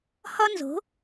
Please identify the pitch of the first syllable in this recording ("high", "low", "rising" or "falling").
high